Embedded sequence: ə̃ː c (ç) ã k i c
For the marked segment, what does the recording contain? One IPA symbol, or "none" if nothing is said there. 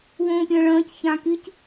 ç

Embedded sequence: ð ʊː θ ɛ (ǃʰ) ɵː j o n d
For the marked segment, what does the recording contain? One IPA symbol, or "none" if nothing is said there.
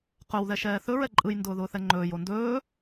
ŋ͡ǃ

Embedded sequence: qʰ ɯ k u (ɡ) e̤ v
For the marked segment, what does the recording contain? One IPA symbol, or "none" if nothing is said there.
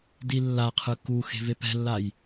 x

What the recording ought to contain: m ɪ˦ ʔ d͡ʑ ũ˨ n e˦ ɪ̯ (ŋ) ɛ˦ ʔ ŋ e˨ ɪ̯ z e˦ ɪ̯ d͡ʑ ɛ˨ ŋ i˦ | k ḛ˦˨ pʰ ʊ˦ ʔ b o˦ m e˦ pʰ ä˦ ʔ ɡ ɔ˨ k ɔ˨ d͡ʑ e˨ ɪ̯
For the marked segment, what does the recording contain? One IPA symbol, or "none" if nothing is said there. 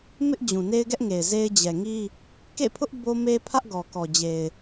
ɡ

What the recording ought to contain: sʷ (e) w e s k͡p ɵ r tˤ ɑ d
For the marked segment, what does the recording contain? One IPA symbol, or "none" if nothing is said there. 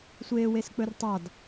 eː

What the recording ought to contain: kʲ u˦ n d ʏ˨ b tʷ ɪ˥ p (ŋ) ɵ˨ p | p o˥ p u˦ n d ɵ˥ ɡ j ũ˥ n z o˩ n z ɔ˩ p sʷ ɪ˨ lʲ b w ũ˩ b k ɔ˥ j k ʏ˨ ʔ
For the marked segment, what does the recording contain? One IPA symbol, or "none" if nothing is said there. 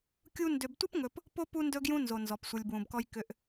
ŋ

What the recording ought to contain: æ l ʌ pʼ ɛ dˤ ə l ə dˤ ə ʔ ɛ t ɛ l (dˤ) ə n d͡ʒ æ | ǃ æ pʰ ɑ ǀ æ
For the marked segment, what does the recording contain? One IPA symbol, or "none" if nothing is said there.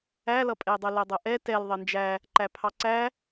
ðˤ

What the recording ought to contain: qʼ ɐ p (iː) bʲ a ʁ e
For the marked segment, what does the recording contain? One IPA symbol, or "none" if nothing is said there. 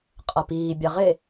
iː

